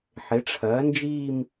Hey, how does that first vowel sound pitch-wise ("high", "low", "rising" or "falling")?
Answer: rising